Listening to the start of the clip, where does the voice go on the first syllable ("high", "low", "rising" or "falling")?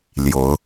rising